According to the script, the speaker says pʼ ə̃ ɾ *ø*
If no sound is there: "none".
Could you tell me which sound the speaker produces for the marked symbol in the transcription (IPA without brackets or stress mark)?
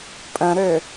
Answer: ø